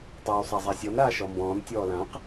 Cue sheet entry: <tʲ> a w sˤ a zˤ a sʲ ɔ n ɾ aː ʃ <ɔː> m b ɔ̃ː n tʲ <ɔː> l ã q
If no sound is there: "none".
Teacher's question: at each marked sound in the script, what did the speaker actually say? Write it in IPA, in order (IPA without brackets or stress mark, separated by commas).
tˤ, ɔ, ɔː